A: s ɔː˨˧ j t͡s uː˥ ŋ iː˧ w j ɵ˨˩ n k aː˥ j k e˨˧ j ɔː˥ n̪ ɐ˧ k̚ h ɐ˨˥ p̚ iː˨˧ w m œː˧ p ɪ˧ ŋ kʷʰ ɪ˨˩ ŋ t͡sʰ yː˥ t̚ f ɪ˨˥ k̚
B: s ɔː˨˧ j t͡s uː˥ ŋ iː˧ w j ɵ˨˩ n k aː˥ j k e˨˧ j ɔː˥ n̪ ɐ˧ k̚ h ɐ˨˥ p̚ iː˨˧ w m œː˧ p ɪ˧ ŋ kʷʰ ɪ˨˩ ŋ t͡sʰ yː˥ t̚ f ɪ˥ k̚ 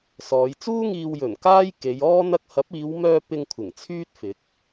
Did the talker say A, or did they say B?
A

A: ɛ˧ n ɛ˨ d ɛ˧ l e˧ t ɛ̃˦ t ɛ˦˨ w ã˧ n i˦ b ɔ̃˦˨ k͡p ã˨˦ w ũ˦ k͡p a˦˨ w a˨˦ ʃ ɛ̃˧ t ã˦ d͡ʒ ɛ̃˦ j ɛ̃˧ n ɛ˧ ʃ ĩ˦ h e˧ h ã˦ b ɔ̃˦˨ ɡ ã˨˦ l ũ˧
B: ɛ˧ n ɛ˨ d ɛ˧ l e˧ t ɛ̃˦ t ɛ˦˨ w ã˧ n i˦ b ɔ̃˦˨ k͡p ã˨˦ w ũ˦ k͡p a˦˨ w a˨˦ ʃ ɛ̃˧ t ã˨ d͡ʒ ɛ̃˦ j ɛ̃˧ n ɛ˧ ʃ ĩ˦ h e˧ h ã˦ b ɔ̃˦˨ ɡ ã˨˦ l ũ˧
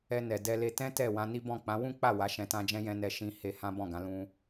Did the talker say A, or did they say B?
A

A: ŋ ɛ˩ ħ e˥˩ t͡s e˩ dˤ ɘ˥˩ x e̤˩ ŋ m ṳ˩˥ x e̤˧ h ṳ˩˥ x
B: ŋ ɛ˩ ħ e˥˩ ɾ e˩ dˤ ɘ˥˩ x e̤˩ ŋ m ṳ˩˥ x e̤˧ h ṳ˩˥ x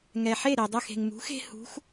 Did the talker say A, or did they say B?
B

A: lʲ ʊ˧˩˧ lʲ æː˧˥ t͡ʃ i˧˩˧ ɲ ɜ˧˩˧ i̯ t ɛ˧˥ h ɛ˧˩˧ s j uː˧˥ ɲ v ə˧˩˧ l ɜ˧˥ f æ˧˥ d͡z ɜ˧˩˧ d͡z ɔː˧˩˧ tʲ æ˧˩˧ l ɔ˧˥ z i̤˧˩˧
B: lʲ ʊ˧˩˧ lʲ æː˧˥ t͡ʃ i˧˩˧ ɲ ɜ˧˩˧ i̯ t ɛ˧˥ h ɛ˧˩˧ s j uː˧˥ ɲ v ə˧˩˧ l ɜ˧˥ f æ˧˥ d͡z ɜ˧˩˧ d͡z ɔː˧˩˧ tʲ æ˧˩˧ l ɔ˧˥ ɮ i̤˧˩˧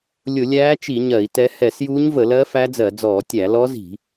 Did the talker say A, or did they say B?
A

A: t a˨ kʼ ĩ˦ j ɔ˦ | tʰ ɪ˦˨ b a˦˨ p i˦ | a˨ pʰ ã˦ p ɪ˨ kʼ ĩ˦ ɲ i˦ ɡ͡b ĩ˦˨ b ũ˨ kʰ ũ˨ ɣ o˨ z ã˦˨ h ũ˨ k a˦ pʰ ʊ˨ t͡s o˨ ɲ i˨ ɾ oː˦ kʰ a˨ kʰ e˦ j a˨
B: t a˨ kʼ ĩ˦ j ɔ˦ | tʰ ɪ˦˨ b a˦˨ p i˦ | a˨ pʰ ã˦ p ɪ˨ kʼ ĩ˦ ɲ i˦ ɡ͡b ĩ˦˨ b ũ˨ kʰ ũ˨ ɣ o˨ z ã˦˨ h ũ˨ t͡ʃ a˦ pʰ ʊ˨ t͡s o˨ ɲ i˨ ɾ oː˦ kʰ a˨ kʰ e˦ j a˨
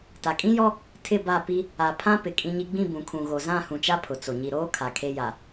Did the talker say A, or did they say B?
B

